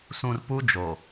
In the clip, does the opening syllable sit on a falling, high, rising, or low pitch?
low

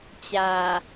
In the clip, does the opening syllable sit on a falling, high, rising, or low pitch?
low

